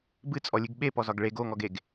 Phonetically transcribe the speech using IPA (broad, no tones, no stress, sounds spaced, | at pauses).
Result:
b ɨ t͡sʼ ɔ lʲ ɨ ɡ ɓ e p ɔ z ɒ ɡ ɭ e ɡ o ŋ ɔ ɡ e ɡ